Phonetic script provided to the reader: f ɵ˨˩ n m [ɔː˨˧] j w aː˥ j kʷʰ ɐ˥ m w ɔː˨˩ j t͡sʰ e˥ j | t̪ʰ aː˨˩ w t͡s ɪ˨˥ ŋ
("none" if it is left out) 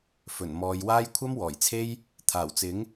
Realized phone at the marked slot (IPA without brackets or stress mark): ɔː˨˧